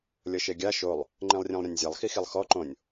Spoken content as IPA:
lʲ ɤ ʃ e ɡʲ a ʃ o lˠ | ŋ͡ǃ ẽ lˠ rʲ ẽ lˠ ɾʲ ã nʲ zʲ a lˠ x i x i lˠ x ɔ ǃ õ nʲ

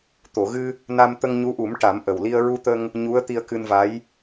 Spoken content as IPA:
t̪ o˨˩˨ ɣ ɨ˧ | n a˧ m t̪ ə˧ ŋ ɲ u˧˥ ʔ u˨˩˦ m ʈ a˨˩˦ m ʔ ə˨˩ w l i˧ ə̯ ɹ u˧ t̪ ə˧ ŋ | ɲ u˧˥ ə̯ t̪ i˧ ə̯ k ɨ˧ n v a˧˥ j

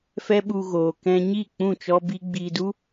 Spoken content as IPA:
f ɛ˦ ɓ u˧ ɣ oː˨ k ɛ̃˧ ɲ i˦˨ k͡p ũ˦˨ t͡ʃ ɔ˦ b i˦ ɡ͡b iː˧ d u˦

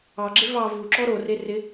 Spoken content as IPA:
ɑ ɡ͡ǁ e v ɑ v u ǁ ɔ ɾ o r e r ɪ

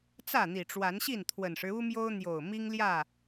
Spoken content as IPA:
t͡s ä˥˨ n̪ i˨˩ ʈ͡ʂ w a˨˦ n ɕ i˥˨ n t̪ʰ w ə˨˩ n ʂ ɻ̩˦ u˦ m j o˦ ʊ̯ n̪ j o˨˩ ʊ̯ m i˦ ŋ l j ä˥˨

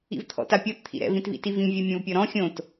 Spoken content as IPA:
ḭ v t̪ʰ ɔ̰ t a pʲ ɔ t t̪ʰ ḭ ɾ ɛ̰ v ĩ t v ḭ t i v ĩ vʲ o mʲ ɔ̃ v pʲ ɔ ɾ ɔ̃ xʲ õ t

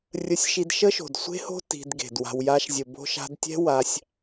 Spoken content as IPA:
rʲ ə˧ sʲ ʃ i˧ d ʃ ə˦ ʃ o̤˨ d sʷ e̤˦ h o̤˦ t i̤˧ d ɡ e̤˨ d w a̤˧ w j a˧ ʃ zʲ ə˨ b o̤˧ ʃ a̤˧ d tʲ ɛ̤˦ w a˧ sʲ

